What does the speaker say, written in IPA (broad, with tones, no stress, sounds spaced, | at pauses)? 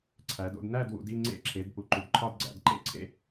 ǀʰ æ˨˦ d o̰˥˧ d n æ˥˧ d w ṵ˨˦ d i˥˧ ŋ͡ǀ ḛ˥˧ ǁʰ e˨˦ d p u˨˦ ǃ u˨˦ d ǃʰ ɒ˥˧ d ɡ͡ǀ æ̰˨˦ d ǃ ḛ˥˧ ǀʰ ḛ˥˧